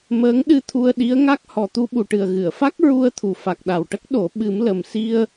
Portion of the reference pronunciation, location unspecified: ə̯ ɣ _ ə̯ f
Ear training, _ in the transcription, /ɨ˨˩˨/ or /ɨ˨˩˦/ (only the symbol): ɨ˨˩˨